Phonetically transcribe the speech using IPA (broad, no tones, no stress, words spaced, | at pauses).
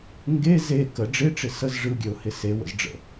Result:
ŋɡe ze kə ɖ͡ʐɪʈ͡ʂɪ səz ʐɯɡʲøʊ̯hɪ sewə̰zɖ͡ʐə̰